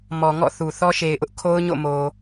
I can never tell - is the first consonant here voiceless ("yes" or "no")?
no